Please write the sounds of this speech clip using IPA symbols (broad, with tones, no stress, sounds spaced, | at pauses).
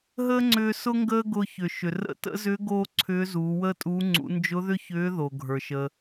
ɦ əː˥ ŋ͡ǀ ʏː˧ s ʊ˥ ŋ ɡ əː˥ ɡ ʊː˧ ç ʏ˩ ʃ ʏ˩ r ə̰˧˥ t ə̰˧˥ z ʏː˧˥ ɡ oː˥ ǀʰ ʏː˧˥ z uː˩˧ w əː˥ tʼ uː˧˥ ŋ͡ǀ ṵ˩˧ n d͡ʒ ʊ˧˥ ð ʏ˥ ç ʏː˧˥ ð o˩ ɡʱ ə˞˩ ʃ əː˩